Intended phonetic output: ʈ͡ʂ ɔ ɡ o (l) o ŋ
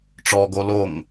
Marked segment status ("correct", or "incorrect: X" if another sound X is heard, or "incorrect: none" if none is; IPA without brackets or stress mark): correct